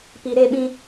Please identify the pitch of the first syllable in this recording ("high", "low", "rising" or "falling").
low